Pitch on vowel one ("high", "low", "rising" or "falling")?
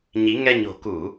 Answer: rising